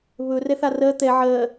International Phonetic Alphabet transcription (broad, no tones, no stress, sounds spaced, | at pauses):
β ɵ r ɛ θ a r ɜ t̪ ɛ ʕ ɜ